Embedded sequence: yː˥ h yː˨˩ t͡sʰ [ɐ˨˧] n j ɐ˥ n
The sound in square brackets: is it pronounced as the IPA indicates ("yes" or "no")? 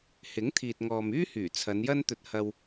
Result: yes